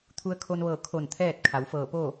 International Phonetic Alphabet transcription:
t̪ʰ u˧ ə̯ kʰ o˧ n ʋ ɤː˧˩ kʰ o˧˩ n t̪ʰ ɛː˥˨ t̚ kʰ a˩˧ w f ɤː˧˩ p o˥˨

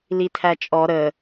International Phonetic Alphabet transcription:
l i tʰ æ t͡ʃʼ ɔ ɾ ə

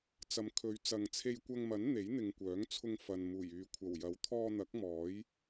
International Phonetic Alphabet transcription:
t͡s ɐ˨˧ m kʰ ɵ˨˧ ɥ t͡s ɐ˨ ŋ t͡sʰ e˧ j kʷ ɐ˧ ŋ m ɐ˨˥ n n̪ e˨˥ j n̪ ɪ˨ ŋ kʷ œː˨˥ ŋ t͡sʰ ʊ˧ ŋ f ɐ˨ n m uː˨˩ j yː˨ kʷʰ ɐ˨˩ w j ɐ˨˥ w t̪ʰ ɔː˧ n̪ ɐ˨˥ k̚ m ɔː˨˥ j

